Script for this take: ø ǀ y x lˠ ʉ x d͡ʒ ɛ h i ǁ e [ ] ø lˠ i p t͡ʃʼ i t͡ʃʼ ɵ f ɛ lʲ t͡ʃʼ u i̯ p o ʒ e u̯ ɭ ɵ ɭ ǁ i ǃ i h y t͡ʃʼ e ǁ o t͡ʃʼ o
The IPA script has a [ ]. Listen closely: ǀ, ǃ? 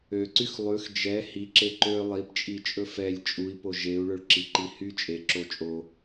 ǃ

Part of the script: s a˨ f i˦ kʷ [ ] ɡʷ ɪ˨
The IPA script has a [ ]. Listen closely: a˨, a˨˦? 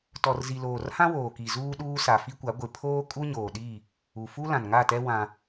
a˨˦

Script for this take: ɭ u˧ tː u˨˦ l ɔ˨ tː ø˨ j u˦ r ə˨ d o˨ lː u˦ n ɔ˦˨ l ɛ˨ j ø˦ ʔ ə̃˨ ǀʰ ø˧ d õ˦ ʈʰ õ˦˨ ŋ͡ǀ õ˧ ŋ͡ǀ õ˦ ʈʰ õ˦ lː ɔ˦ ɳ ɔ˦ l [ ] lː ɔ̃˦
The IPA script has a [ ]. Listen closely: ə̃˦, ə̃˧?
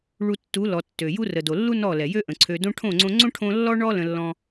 ə̃˧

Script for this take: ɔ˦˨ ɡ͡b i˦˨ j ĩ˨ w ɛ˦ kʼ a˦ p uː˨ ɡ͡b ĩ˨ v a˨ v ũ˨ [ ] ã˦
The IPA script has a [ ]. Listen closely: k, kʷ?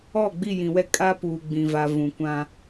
kʷ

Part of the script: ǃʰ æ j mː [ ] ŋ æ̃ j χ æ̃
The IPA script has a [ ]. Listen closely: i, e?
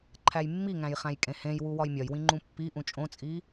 i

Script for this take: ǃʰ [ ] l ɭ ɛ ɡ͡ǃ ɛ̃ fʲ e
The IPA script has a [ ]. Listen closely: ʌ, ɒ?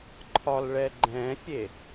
ɒ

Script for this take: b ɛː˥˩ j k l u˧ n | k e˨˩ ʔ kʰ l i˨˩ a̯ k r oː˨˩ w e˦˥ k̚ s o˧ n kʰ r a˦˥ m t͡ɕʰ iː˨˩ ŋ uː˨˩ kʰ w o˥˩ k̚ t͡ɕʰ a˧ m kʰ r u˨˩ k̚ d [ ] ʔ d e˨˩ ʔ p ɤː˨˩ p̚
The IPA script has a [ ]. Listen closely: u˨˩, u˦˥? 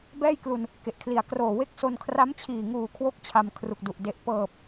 u˨˩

